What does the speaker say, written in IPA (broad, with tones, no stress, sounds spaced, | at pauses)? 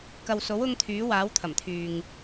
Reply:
k ɐ˨ w s o˨˥ w ʊ˧ ŋ t̪ʰ yː˨˥ w aː˨˥ w t̪ʰ ɐ˨˩ m t̪ʰ yː˨ ŋ